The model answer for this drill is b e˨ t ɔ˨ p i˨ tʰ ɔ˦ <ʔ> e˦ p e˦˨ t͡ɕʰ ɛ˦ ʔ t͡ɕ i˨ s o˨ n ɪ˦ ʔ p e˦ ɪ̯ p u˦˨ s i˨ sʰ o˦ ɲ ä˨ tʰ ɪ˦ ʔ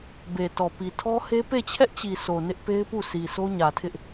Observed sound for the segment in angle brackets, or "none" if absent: h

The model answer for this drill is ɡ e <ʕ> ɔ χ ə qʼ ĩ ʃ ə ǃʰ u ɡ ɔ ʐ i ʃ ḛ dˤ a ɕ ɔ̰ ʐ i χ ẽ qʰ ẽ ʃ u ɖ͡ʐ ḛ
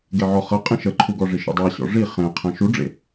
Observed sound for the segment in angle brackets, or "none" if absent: ʕ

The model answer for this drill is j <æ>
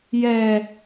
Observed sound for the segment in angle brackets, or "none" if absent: ɛ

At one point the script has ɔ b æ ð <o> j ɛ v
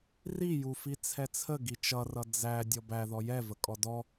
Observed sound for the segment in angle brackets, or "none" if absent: ɔ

